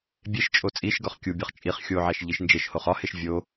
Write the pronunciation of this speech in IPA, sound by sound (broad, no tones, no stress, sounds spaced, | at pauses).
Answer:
bʲ e ʃ t͡ʃʼ o t͡sʼ i ʃ ɡ ɒ χ kʲ u bʲ ɒ χ t͡ʃʼ i χ xʲ o ʕ æ ʃ ʎ i ʃ n d͡ʒ e ʃ h o χ ɒ h e ʃ vʲ o